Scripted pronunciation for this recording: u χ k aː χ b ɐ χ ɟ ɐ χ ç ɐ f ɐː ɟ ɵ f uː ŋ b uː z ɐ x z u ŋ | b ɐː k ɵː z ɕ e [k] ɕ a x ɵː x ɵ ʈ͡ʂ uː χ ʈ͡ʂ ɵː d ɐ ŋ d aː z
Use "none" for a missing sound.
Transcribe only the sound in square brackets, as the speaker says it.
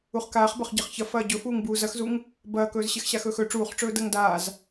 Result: x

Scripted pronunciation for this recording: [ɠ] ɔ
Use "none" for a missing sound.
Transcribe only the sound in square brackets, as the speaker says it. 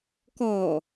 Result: k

